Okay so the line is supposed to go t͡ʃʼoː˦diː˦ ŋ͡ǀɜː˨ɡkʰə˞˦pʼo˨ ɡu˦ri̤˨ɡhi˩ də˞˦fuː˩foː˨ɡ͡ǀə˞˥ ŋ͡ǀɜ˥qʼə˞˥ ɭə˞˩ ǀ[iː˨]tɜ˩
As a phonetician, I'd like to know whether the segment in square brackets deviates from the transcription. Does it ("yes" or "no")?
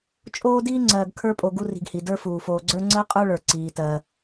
yes